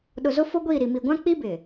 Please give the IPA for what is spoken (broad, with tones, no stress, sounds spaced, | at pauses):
ɗ ʊ˨ z ʊ˦ f o˦ ɡʷ iː˦˨ ɾ i˨ m i˨ ɡʷ ã˦ k͡p i˦ b ɪ˨